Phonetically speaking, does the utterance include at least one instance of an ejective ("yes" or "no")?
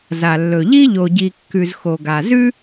no